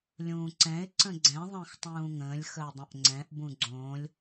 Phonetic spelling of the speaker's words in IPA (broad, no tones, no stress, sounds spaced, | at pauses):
lʲ ũː ǀ ɛ̃ ɪ̯ ǀ ə̃ ɡ͡ǀ ɛ̃ ðˤ ə̃ː x tˤ ũː ŋ ə̃ː lʲ x ə ʊ̯ dˤ ə̃ ʔ ŋ͡ǀ ɛ̃ ʔ b ũ ɡ͡ǀ õː lʲ